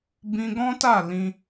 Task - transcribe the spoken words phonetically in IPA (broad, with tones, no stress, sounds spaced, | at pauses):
b ĩ˧ ɡ ɔ̃˦ t a˦˨ l ĩ˧